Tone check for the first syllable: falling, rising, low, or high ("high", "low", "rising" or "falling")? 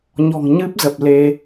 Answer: low